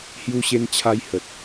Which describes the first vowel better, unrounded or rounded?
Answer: rounded